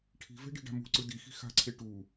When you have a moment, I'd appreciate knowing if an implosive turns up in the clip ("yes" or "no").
no